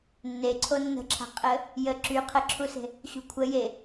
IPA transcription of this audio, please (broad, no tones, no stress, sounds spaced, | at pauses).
nː e ǀʰ o nː ə̤ ǁʰ a̤ qʼ ə | j ə ǁ y qʰ ə ǁʰ u s e̤ | ɕ ṳ kʷʰ ə j e